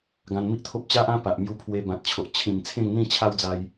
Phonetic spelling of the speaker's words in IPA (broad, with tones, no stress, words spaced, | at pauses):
ɡã˧nmi˦ʔt̪ʰo˦p̚ t͡ɕa˦ʔã˦ pa˨ʔmju˧ pʰwe˧bã˨t̚t͡ɕʰo˨ʔ t͡ɕʰĩ˨˩m t͡sʰẽ˥˧ŋ n̪ĩ˥˧t͡ɕʰa˦wd͡za˧j